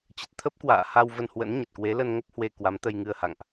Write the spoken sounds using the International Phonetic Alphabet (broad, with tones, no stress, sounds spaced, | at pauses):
t͡ɕ ə˨˩ t̚ t̪ʰ ə˦˥ p̚ k w a̰ː˧˨ h a˧ w v ə˧ n h w ə̰˧˥ n ɲ ə˨˩ t̚ k w e˨˦ l ə˧ n ŋ ə˦˥ p̚ h w e˧ k w a˨˦ m t̪ ə˧ j ŋ ɨ˧ ə̯ h a̰˧˨ ŋ ʔ